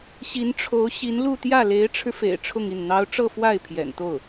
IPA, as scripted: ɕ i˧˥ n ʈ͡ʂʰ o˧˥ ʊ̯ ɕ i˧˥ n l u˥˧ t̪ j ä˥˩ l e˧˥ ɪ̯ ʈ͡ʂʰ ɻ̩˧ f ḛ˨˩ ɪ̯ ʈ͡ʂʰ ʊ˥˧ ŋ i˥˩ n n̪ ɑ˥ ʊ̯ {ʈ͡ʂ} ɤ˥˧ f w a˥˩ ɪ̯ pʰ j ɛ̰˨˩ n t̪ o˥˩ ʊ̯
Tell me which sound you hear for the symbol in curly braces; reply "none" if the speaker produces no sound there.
ʈ͡ʂ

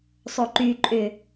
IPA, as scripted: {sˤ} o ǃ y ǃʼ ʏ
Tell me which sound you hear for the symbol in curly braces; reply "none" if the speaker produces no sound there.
sˤ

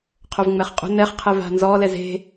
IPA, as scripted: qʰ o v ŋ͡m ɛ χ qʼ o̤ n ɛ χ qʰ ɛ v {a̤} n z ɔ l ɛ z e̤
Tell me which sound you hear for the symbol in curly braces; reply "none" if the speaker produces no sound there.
a̤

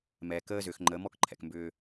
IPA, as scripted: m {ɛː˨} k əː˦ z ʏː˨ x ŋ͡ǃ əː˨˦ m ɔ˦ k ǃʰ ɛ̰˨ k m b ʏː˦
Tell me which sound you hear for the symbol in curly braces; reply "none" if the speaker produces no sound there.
ɛː˨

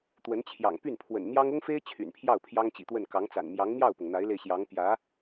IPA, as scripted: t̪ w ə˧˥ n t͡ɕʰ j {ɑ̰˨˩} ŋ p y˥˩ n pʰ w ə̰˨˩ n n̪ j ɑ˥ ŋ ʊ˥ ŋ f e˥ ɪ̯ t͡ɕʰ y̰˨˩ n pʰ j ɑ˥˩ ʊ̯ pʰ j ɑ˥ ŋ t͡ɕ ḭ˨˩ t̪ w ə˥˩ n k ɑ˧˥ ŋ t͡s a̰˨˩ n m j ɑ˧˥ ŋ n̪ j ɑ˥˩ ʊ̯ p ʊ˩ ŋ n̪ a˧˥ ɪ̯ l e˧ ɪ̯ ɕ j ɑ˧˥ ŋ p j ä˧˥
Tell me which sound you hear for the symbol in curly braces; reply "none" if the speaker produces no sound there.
ɑ̰˨˩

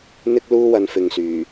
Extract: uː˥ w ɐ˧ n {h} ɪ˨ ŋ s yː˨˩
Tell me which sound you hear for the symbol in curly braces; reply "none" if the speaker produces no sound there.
f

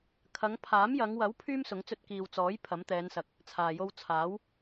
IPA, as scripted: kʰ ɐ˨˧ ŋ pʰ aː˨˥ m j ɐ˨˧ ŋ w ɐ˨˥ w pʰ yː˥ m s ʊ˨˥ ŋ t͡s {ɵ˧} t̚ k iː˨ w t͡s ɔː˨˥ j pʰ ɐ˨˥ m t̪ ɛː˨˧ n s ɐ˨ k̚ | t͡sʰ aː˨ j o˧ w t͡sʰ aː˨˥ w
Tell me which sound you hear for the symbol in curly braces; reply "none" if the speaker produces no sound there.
ɵ˧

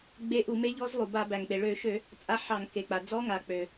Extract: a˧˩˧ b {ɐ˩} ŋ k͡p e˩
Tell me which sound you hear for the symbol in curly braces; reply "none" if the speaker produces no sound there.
æ˩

